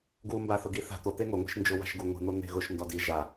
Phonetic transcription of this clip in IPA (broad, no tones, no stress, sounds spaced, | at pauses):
ɡ u m b a θ ʊ ɡ i θ a̤ t̪ o t̪ e ŋ o ŋʷ e̤ ʃ n d͡ʒ ʊ w a̤ ʃ ɡ u ŋʷ i̤ n̪ o n̪ e̤ ɣ ʊ ʃ n d ɔ d i ʒ a